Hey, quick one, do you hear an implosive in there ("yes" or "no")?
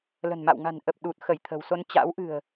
yes